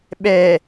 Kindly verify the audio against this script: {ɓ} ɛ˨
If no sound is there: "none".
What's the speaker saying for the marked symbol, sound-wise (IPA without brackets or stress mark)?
ɓ